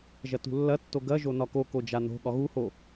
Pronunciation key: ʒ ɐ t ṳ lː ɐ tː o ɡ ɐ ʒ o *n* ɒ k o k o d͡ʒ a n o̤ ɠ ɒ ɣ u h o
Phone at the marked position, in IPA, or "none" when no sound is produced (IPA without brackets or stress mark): n